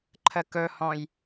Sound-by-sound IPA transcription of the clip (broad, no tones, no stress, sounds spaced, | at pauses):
ǃʰ ə k ɵ h ɔ̃ j